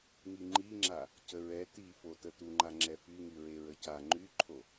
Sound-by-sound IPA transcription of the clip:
ŋiŋ͡ǃiŋ͡ǁa | cəɹɛ tifo tətuŋ͡ǃa ŋ͡ǁɛfyŋy ɹeɹəca ŋ͡ǃyǃʰo

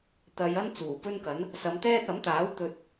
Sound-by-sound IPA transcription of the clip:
t̪ɐ˨˧jɐ˥n t͡suː˨˩pɵ˥nkɐ˨˥n | sɐ˨˧mt̪ɛː˥t̚ ɐ˨˥mt̪aː˨˥w t̪ɵ˧t̚

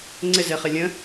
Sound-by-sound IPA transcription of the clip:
ŋ͡ǀɪzeχɪ lʲə̃

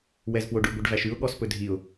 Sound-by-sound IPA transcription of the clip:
wɛzpwoɖʉ ɡʷɛɖvæʃʉʊ̯ ɠɔspɵdʱiʊ̯

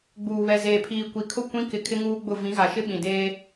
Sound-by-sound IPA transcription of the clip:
ɡ͡buː˨βɛ˨zeː˨pʰiː˨ kʷi˨kʰʊ˦˨ kʷĩ˦ kɪ˨ kʰɪ˦ŋuː˦ɡ͡bʊ˦˨ vĩ˨˦ɣa˨ʃɪ˦ ɓĩ˨deː˦

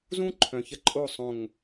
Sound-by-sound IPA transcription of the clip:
zũ˦ ǃʰœ̃˨çə˦ ǃʼo˦˨ sˤõ˨ŋ

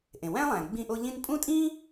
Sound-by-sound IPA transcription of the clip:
ʔẽ˩wæ̃˦lˠæ̃ː˩ ɡ͡bĩ˦ʔo˦ʎĩ˥n pʼũ˥ tʼĩː˥

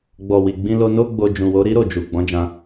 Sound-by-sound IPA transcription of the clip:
ɡ͡bɔ˨ wi˨ɡ͡bĩ˧lo˧ no˦ɡ͡bo˧ d͡ʒũ˨wo˨˦ ɾi˦ɾo˦˨ d͡ʒu˨ ɡ͡bɔ̃˨˦d͡ʒã˧

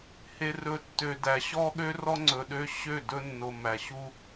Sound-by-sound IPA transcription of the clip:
he˨rɵ˨ tːø˨dæ˨ ɕɔ˦ɠø˦rɔ˦ ŋ͡ǀɵ˨ɗø˦ ɕø˦˨ dɵ˦nːo˨mæ˨ ɕu˦

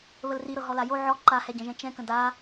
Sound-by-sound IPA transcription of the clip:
βəlriɾɤ ɦɔlajo ʕɔ ǃahɛɟə̃ʒɛ̃ t͡ʃɛ̃kə̃ da

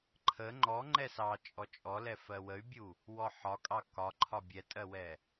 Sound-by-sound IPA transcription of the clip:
ǃʰə ŋ͡ǃɔ ŋ͡ǃɛsɑ t͡ʃʼɔt͡ʃʼɔlɛfɜ wəy̯bʲu | wɔħɒkʼɑ kɒǃʰɒ bʲɛtʼɜwɛ

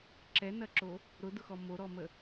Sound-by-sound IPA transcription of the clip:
ǁɛnɐǁo | ɾʊdʊxɔ moɾɔmə

